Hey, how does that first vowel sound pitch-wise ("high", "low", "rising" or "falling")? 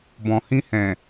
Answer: low